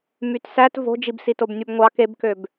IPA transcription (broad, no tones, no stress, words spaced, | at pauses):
mytsæt vo̤d͡ʒibsitob nʲubŋʷɑ kebkøb